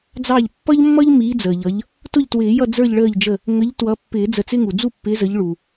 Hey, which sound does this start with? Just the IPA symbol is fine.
d͡z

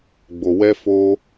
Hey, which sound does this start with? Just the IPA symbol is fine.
ɡ͡b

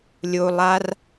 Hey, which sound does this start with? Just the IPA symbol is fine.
lʲ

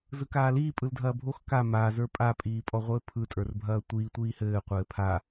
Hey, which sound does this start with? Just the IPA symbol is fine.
z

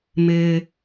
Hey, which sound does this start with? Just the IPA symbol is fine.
m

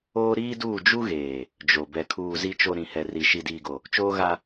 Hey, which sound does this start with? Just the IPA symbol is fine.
oː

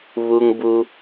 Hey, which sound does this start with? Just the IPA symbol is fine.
β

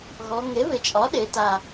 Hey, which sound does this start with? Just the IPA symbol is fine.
ɣ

